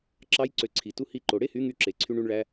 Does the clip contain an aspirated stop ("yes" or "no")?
yes